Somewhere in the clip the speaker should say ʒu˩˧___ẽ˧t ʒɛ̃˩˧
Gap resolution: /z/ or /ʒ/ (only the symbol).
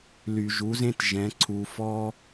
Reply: z